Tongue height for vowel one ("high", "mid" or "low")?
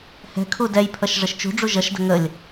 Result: mid